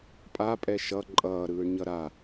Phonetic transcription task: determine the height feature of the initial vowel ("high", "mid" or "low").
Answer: low